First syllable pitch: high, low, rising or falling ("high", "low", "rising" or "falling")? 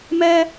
high